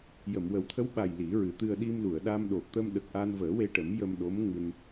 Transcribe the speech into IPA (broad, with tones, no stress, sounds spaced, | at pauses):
j ə˨˩˨ m w ə˨˩˦ w t̪ʰ ə˧˥ w ɓ a˨˩ j l i˨˩˦ ɹ ɨ˨˩˦ t̪ ɨ˧ ə̯ ɗ i˧ m l u˨˩˨ ə̯ ɗ a˧ m ɗ o˨˩ t̪ ə˧ m ɗ ə˨˩ k̚ ʔ a˧ n v əː˨˩˦ w e˧ ʈ ə˨˩˦ m j ə˧ m ɗ o˧˥ m ŋ ɨ˧ n